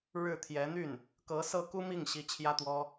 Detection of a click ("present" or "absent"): absent